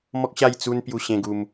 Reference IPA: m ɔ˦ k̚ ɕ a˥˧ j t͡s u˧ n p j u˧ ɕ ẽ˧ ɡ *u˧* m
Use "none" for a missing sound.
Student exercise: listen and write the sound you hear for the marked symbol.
u˧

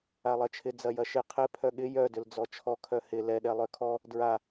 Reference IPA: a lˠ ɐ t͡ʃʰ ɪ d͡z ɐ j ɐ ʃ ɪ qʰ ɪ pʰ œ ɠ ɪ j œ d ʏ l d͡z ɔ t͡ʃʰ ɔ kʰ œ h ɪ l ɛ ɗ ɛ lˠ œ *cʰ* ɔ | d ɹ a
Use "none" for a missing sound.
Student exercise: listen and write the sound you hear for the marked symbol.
kʰ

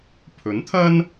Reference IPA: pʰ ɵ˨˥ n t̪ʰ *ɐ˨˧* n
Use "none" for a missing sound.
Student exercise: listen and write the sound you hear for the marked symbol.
ɐ˥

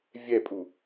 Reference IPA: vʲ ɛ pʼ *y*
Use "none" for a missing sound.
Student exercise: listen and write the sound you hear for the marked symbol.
u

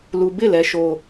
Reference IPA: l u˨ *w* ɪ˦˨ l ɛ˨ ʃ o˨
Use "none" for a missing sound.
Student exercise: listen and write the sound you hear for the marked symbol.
b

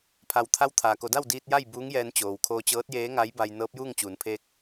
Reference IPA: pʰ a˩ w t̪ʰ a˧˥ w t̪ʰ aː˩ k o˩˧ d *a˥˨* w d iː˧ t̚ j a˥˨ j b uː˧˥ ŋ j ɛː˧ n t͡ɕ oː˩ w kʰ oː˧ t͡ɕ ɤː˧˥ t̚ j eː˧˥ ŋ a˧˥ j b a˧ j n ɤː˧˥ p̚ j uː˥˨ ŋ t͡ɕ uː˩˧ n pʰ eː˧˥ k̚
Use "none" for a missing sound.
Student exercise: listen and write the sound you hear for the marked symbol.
a˥˨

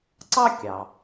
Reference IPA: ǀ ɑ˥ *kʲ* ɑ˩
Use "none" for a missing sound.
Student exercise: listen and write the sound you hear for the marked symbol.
kʲ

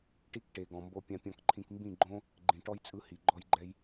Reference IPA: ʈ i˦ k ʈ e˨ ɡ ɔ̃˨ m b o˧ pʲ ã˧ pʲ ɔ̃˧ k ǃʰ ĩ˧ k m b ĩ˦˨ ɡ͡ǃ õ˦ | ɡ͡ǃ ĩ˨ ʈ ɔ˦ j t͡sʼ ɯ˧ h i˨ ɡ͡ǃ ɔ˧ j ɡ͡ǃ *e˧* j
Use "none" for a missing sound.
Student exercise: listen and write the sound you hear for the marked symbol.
ɛ˧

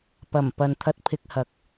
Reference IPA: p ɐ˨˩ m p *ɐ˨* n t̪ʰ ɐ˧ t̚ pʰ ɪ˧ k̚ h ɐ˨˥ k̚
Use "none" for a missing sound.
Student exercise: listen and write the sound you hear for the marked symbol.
ɐ˨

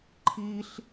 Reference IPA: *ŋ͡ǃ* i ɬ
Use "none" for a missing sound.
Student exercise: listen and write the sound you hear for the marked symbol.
ǃʰ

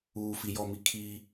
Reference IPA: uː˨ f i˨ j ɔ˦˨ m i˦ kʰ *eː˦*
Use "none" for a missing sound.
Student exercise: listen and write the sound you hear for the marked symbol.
iː˦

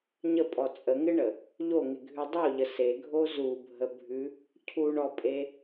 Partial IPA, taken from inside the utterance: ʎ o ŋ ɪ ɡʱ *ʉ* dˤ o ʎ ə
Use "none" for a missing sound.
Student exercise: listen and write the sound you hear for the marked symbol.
ʉ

